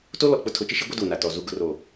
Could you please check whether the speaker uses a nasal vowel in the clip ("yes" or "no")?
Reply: no